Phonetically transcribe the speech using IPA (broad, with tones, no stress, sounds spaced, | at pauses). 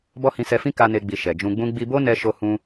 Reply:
b ɔ˦ h ĩ˧ s ɛ˧ f ĩ˦ k a˦ n e˦ ɡ͡b i˧ ʃ ɛ˨ d͡ʒ ũ˧ ɡ͡b ũ˦ ɡ͡b i˧ b o˦ n ɛ˧ ʃ o˧ h ũ˧